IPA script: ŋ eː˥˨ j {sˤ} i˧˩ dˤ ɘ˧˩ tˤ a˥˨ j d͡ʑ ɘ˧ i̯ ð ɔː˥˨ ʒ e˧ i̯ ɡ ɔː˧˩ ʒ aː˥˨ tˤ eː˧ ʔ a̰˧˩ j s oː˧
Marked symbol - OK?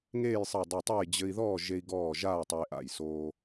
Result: yes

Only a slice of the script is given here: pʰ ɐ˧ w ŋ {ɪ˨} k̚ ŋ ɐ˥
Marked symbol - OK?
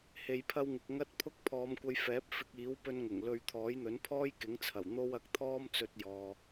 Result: yes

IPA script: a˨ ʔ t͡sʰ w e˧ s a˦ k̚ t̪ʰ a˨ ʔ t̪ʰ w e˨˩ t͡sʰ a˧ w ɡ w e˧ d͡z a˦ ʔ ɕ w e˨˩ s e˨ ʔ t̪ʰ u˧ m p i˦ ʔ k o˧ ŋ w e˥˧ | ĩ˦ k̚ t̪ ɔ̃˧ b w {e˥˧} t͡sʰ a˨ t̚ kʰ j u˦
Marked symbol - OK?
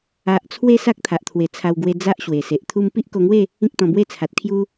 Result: yes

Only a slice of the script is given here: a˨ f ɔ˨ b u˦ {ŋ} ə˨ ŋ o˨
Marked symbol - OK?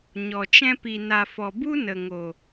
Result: no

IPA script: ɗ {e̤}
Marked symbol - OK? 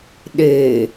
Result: no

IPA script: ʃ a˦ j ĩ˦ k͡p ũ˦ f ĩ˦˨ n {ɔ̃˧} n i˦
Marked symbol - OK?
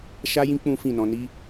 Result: yes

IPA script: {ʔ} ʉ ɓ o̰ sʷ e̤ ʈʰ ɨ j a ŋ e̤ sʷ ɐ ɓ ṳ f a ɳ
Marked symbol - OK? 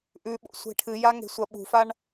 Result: yes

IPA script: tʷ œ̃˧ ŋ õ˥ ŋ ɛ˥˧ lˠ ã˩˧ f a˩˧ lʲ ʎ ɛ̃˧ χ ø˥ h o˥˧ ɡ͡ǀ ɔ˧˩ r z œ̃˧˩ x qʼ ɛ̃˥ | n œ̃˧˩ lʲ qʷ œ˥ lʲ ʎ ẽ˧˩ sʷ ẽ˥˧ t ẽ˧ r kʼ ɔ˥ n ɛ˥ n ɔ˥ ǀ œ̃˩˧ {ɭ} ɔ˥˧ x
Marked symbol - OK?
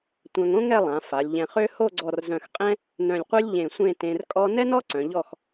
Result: no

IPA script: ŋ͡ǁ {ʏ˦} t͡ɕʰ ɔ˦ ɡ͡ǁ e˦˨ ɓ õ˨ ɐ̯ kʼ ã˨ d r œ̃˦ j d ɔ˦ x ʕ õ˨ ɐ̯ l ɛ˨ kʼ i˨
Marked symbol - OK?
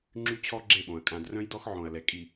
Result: no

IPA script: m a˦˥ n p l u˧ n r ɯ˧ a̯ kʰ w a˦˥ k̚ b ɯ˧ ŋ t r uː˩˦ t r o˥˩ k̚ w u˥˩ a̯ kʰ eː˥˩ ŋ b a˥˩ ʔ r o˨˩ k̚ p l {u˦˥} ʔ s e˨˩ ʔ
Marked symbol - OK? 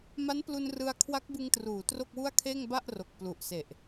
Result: no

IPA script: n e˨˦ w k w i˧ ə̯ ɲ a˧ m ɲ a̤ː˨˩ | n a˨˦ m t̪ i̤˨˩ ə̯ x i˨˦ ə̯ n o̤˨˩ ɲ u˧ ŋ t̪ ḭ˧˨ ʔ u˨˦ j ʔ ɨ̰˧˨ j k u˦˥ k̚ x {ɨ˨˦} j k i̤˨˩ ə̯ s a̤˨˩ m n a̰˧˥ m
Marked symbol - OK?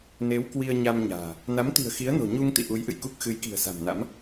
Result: yes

